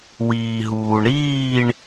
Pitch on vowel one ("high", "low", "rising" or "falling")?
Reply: low